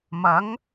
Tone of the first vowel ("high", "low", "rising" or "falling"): rising